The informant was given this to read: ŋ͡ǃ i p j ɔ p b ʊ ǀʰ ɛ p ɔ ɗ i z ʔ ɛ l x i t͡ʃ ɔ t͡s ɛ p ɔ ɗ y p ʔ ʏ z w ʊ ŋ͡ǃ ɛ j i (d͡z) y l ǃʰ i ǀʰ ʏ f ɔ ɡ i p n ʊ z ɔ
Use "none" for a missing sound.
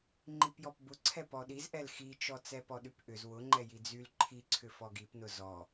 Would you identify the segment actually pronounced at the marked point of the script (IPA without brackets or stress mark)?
d͡z